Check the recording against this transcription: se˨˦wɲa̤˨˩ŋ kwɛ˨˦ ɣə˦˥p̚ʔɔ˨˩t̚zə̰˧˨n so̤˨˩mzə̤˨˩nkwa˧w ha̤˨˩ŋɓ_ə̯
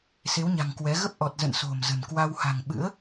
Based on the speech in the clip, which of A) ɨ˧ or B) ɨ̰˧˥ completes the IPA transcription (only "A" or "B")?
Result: B